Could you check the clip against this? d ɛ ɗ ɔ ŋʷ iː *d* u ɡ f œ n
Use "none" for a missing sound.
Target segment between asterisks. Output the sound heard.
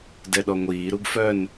ɾ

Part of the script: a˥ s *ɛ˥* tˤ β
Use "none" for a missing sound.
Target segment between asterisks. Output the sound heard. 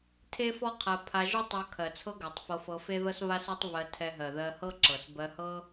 ɜ˥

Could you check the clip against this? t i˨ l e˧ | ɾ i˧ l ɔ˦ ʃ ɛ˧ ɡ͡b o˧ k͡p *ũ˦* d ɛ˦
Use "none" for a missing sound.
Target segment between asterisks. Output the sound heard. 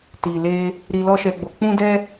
ũ˦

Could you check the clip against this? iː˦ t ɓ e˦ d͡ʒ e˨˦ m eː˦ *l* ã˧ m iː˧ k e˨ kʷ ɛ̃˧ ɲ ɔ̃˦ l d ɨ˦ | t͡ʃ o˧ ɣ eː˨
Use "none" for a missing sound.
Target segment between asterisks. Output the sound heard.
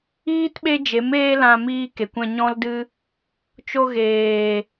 l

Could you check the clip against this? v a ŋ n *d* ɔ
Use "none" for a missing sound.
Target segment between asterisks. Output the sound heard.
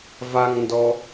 d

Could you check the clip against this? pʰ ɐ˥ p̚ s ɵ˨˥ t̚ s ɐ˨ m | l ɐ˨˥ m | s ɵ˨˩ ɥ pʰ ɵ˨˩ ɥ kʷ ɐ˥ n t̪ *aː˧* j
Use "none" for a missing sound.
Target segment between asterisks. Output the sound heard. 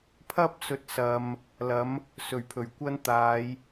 aː˨˧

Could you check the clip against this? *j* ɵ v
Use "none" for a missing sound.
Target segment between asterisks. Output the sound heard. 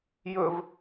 j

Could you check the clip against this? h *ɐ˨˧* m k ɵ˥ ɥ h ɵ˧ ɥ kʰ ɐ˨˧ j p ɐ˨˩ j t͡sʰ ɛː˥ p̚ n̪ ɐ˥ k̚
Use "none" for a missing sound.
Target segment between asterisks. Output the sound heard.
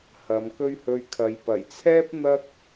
ɐ˨˧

